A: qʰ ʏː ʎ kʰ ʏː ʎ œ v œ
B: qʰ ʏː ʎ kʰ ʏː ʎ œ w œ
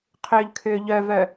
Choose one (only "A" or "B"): A